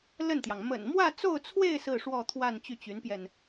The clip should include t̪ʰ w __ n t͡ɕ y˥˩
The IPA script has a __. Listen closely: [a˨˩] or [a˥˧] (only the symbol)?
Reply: a˥˧